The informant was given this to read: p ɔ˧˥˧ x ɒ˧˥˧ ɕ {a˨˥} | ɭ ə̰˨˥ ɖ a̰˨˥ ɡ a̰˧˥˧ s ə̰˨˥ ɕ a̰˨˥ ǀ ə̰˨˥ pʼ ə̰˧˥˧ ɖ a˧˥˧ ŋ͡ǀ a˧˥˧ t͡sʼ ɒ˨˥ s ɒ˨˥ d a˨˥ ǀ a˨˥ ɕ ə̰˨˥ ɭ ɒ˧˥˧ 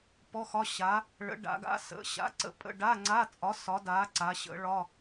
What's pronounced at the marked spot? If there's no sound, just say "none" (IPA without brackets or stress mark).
a˨˥